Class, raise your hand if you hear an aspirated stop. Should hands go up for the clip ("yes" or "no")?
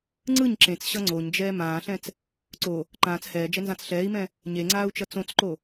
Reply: no